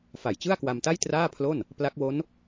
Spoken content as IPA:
fa˨˩jt͡ɕɯ˥˩a̯kwa˧mta˥˩j traː˥˩pʰlo˥˩n | pla˦˥k̚wo˦˥n

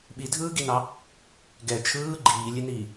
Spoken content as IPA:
ɓidʱɯːɡinɑ | ɡɛ t͡ʃʰɯː ɡ͡ǃiːlʲeniː

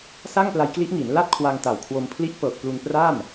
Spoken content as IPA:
sa˥˩ŋpla˧jkli˦˥ʔŋi˩˦n la˥˩t̚kʰwa˧ŋta˨˩wkʰwo˧m pʰli˥˩ʔ pɤː˨˩k̚plu˧npra˥˩m

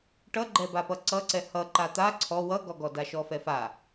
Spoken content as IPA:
ʈʌɡ͡ǃɛbapʌ ǀʌǀɛ hʌ ǃat̪a ǀʰɔ wʌɡɔɡɔ daʃɔfɛfa

